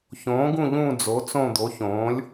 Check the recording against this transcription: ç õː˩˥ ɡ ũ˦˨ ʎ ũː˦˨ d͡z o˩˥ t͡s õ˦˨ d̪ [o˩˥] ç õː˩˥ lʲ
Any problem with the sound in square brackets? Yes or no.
no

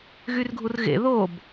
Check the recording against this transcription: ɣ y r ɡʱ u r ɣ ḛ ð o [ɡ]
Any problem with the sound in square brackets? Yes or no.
yes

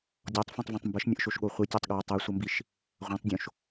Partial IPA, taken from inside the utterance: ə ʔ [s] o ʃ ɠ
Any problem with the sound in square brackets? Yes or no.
yes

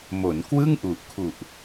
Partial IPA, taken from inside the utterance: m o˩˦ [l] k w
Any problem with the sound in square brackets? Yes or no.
yes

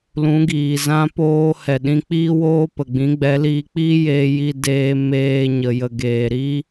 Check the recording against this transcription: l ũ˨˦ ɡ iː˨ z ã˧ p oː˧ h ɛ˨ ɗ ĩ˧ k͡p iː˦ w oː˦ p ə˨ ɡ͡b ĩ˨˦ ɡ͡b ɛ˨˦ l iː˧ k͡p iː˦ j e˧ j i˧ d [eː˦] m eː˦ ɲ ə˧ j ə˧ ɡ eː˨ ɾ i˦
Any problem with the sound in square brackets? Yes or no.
yes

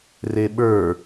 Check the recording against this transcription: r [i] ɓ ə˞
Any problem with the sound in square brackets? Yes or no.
yes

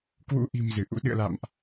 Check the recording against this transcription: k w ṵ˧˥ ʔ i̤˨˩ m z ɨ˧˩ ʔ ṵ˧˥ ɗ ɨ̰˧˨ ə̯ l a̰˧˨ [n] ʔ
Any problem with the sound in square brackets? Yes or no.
yes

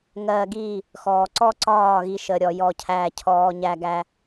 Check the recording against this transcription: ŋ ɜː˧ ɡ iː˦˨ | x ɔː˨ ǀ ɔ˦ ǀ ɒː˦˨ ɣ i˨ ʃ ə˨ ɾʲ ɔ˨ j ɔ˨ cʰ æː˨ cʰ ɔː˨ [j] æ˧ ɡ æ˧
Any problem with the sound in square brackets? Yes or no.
yes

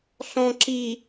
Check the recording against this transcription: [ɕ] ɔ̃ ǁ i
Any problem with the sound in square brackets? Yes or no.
yes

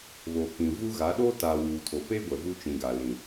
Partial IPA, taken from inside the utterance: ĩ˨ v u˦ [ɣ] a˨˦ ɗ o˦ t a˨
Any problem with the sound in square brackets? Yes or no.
no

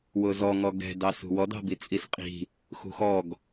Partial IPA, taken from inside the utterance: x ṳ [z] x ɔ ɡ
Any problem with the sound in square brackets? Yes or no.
yes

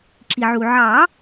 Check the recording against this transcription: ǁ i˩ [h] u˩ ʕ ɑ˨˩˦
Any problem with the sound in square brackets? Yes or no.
yes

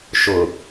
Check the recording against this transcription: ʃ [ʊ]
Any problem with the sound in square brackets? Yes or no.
no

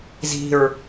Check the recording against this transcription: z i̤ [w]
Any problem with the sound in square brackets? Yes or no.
yes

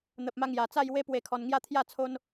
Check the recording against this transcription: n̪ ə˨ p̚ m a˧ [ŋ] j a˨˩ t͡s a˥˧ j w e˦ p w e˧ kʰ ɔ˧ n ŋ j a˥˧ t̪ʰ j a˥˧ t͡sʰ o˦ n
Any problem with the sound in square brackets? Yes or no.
no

